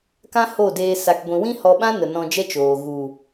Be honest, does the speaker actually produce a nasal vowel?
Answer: yes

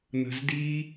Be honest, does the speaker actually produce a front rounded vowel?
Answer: no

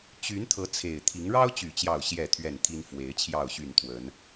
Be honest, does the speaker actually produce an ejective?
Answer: no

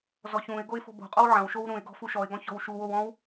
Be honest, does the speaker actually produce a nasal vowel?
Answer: yes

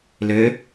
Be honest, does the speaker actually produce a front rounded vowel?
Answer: yes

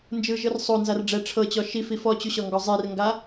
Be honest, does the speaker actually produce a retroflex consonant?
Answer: yes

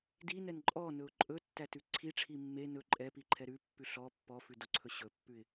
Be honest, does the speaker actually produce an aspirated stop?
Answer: yes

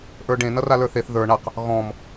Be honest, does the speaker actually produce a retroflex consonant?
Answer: yes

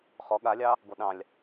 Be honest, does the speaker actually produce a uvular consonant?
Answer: yes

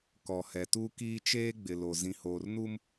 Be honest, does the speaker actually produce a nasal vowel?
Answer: yes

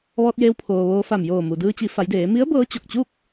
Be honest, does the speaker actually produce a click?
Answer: no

